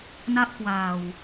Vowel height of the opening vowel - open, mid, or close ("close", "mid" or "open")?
open